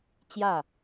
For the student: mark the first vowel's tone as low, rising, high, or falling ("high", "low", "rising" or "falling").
falling